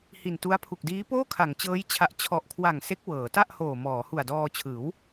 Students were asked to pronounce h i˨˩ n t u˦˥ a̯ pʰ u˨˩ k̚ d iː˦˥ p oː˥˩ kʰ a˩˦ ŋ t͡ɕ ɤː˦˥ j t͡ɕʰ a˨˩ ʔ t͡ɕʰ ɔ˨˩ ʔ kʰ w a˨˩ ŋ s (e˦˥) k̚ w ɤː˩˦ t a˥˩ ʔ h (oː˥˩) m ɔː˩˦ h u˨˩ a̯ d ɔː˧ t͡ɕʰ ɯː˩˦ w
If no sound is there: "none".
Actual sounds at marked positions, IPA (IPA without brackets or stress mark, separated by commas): e˦˥, oː˨˩